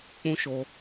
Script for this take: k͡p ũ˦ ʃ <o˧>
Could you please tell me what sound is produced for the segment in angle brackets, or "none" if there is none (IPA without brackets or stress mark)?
o˧